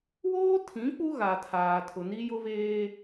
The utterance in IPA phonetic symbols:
woː˦tʰĩ˨˦ k͡pu˦ɣa˨tʰaː˨ tʰʊ˨ni˦jʊ˦veː˦

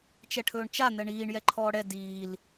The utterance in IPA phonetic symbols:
t͡ʃɛʈʰɵːɳt͡ʃa n̪ɛɳiːɳ jɛǃʰɔːɽɛ diːl

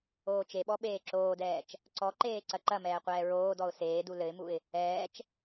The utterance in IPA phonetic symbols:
oːt͡ʃeɓɔ ɓeːǁoːdɛːt͡ʃ | ǀɔǃeː ǀɐǃɐmɛː qʷɛːɹoːdɔʊ̯ seːdu lɘɪ̯muɪ̯ | ɛːt͡ʃ

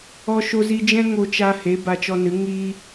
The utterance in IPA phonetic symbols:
ɔ˧ʃo˧zi˧ d͡ʒɛ̃˦ŋo˧t͡ʃa˧ he˨˦ ba˧t͡ʃɔ˧nɨ˨˦ ŋiː˦

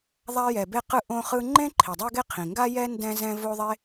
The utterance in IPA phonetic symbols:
ðˤa˥jɛ˩be˥ qɯ˥ʔõ˥χɯ˥ ŋ͡ǃẽ˥ ǃʰi˩dˤo˥ɡe˥qʰĩ˩ ŋɡa˥jɛ˥ ndɛ̃˥zɛ̃˥ vo˥ðˤe˥

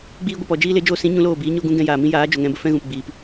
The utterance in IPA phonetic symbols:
ɡ͡biː˦ɡʷə˧ pɔ˨d͡ʒiː˦ le˨˦d͡ʒoː˧sĩ˨˦ ɲũ˨˦loː˦˨biː˨˦ ɲo˦ɡũ˦ ɡɛ̃˧jaː˨mĩ˦jaː˨˦ d͡ʒo˨ŋɛ̃˧bə˦fɛ̃˦ ɣũ˨pɡ͡biː˨p

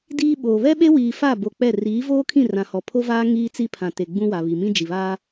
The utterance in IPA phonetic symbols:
diː˦ɓoː˨ βɛ˦ɓe˦wiː˨ fa˦˨bo˨ k͡pɛ˦˨ riː˨˦voː˦kʰĩ˦˨ rã˨hɔ˨pʰo˦vaː˦ ŋiː˦t͡si˦pʰã˨te˨ ɡ͡bũ˦wa˨ βi˨ mĩ˦d͡ʒi˨βaː˦

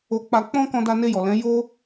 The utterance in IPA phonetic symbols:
o˧k͡pa˧ k͡pɔ̃˦ kɔ̃˦da˦ ne˧jɔ˨lɛ̃˨˦ jo˦

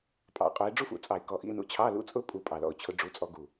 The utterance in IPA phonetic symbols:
pʼɑ̰˧˩˧qʼu˨˦ɪ̯ ɖ͡ʐu˦˥fṵ˧˩˧t͡sʼɑ˧˩˧ɪ̯ kɔ˨˦ʔḭ˧˥˧nṵ˧˥˧ t͡ɕʰɑ˧˥˧lṵ˧˥˧t͡sʼʊ˦˥ pʼu˨˦pʼɑ˨˩lɔ̰˨˩ʊ̯t͡ɕʰʊ˨˦ ɖ͡ʐu˨˦t͡sʼɔ˨˦ɡu˨˩

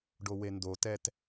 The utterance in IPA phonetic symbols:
ɖowendotɛt

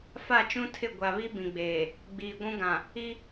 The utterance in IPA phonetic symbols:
fa˦˨t͡ʃũ˦tʰɪ˦˨ ɡʷa˨βi˦ bĩ˨ɡ͡beː˨ | ɡ͡biː˨ɡʷũ˦ɡã˨ | i˦

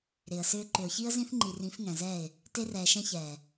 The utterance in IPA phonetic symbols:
ɾɪː˨ə̯sʏː˦ ǃʏ˨ʊ̯çi˦ə̯ zĩ˦θŋ͡ǃi˨ rĩ˨˦fŋɛ̃˨zɛː˦˨ɪ̯ | te˦rɛː˨ʃɛ̃˦ çɛː˨

